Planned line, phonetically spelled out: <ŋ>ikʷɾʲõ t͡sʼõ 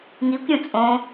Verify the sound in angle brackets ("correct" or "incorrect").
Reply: correct